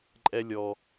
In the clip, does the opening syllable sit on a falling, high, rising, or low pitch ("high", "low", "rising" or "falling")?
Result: high